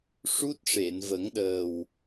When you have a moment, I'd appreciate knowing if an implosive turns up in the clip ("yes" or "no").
yes